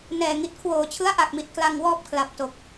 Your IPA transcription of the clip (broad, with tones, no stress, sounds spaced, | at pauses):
n ɛː˨˩ ŋ i˨˩ t̚ kʰ w oː˨˩ t͡ɕʰ ɯ˦˥ a̯ ʔ a˨˩ k̚ m i˨˩ t̚ k l a˧ ŋ w ɔː˥˩ p̚ kʰ l a˨˩ p̚ t o˨˩ k̚